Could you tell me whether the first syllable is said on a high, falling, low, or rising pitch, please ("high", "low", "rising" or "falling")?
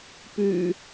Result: low